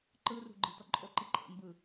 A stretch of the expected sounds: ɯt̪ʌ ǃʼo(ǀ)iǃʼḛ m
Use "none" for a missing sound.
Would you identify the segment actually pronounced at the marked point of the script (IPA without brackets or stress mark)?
ǃ